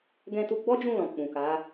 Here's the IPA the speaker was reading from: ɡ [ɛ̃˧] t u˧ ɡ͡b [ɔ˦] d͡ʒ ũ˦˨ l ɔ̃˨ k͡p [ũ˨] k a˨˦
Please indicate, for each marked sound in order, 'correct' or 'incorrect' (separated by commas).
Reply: correct, correct, correct